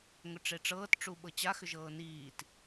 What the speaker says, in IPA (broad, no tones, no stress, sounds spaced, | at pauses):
ŋ ʏ ʈ͡ʂ e ʈ͡ʂ ɤː t ʈ͡ʂ u ɓ ɤ t͡ɕ a x ʏ ʒ ɤː n iː t